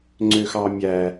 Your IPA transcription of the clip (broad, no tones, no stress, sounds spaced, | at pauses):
ŋ͡ǀ ø x ɑ mʲ æ